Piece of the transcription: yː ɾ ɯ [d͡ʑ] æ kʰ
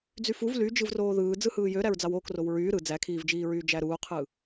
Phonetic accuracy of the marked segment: incorrect: d͡z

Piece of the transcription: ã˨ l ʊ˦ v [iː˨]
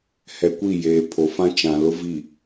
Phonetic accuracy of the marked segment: incorrect: i˨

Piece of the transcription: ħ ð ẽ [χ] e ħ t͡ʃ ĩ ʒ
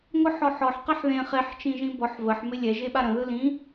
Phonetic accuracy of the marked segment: correct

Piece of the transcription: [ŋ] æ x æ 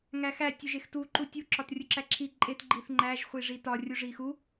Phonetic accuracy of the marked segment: correct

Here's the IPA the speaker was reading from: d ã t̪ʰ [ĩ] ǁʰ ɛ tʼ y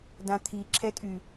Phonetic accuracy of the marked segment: incorrect: i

